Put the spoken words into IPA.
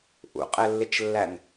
ʔṵqʼɛlːɪt͡ʃlːæn

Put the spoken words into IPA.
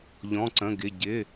ʎɔ̃˧˥˧ǀə̃˧˥˧ɡɪ˧˥˧ ɟɪ˧˥˧

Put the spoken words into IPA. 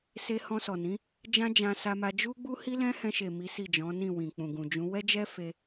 se˧ hɔ̃˧sɔ˨nĩ˨˦ | d͡ʒã˦d͡ʒã˧sa˧ma˧ d͡ʒu˦ɡ͡bu˦ hi˦lɛ̃˦hɛ̃˧ʃe˨ mi˨˦si˦˨d͡ʒɔ̃˨˦nĩ˦˨ wĩ˨k͡pũ˨ɡũ˨d͡ʒũ˨˦ wɛ˦d͡ʒɛ˦ fe˧

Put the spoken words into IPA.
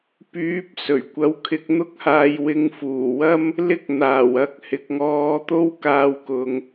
pyː˨˥p̚ sɵ˨˩ɥkʷɐ˨˥w kʰɪ˨˥k̚n̪ʊ˥k̚haː˧j wɪ˨˧ŋfuː˨˩wɐ˥m | lɪ˥k̚n̪aː˨˩w ɐ˨k̚ hɪ˨k̚ŋɔː˧t̪o˥w kaː˧wkʊ˨ŋ

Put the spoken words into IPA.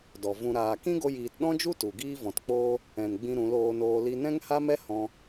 dɔ˨vũ˧ ɾaː˨kĩ˦ ɡo˦jiː˧t ɗɔ̃˦d͡ʒu˦ tu˨ɡiː˦vɔ̃˨tk͡poː˦ | ɛ̃˨nɡ͡bĩ˧ ɾũ˨˦loː˧noː˧ li˧nɛ̃˦ŋha˦mɛ˦ hɔ̃˧

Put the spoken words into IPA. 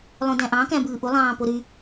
lˠõdæ̃ʔɑ̃ kæ̃bɯːʔu lˠɑ̃ːpoɾy

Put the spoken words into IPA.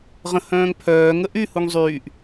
ʁə̃hœ̃ːŋ pʰœː ŋəʔyhuŋ zˤyːʔ

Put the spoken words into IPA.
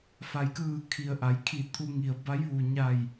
fa˩jkɯː˧˩ kʰi˩ə̯ʔa˩˧jkʰi˧˩ t̪ʰu˧ŋi˩ə̯ba˧˥j ʋu˩ɲa˧˩j

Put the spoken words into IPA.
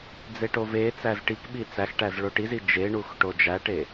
d͡zeʈovet͡sæz ʈikɓi t͡sæxʈæz ɭoʈizi d͡ʒeɳux ʈod͡ʒæʈe

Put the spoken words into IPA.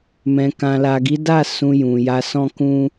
mɛ̃˨kã˨la˨ ɡi˨˦da˦˨ sũ˧ jũ˨ ja˧sɔ̃˦ kũ˦

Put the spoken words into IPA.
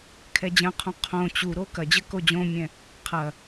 kʰɛd͡ʑɐ̃qʰũ qʰõ t͡ɕuɾo kɐd͡ʑɘ kod͡ʑõmʲɛ̃ | qʰɐ

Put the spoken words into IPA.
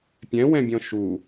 pʲɛ̃wɛ̃bʲɔ̃ ʃu

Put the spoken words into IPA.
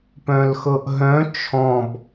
pœ̃lxɤʔɦœ̃ t͡ʃʰɔ̃b

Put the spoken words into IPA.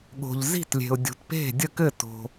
ɠo̤˩ʎzi̤˥˩tlʲe̤˩ʊ̯dʲo̤˩t pe̤˥˩dʲə˥˩kɘ˥˩ to̤˩

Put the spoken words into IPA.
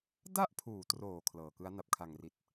da˥˩ʔpʰuː˩˦troː˩˦ kʰlɤː˨˩kɯ˦˥a̯ na˨˩p̚kʰa˨˩ŋri˨˩t̚

